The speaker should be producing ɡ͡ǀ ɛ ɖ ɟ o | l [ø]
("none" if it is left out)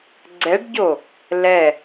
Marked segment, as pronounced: ɛ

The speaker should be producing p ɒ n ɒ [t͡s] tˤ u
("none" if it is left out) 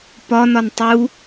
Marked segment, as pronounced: n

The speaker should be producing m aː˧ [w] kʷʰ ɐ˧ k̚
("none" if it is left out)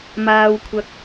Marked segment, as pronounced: w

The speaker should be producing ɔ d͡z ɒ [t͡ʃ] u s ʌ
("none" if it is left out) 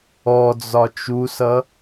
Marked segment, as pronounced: t͡ʃ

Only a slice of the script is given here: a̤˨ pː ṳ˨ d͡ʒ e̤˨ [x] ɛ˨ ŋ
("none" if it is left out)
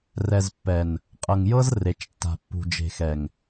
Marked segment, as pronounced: x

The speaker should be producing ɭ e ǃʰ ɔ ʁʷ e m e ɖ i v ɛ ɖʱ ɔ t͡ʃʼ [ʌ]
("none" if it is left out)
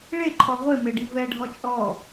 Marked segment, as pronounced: ɔ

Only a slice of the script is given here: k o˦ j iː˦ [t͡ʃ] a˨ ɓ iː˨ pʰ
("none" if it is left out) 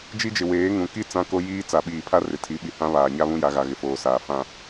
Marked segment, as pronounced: t͡s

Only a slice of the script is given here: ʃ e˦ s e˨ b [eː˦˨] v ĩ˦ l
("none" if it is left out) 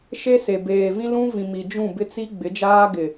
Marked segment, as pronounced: eː˨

